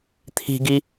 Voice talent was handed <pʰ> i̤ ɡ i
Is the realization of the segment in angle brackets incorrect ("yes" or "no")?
yes